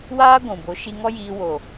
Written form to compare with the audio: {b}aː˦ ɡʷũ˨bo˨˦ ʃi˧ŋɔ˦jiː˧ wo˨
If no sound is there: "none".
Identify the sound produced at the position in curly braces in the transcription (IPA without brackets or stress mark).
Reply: w